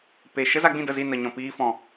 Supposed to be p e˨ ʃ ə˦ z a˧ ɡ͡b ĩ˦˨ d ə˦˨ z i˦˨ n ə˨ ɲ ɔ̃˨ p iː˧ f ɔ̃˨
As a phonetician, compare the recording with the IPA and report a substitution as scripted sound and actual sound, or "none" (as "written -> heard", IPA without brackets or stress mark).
none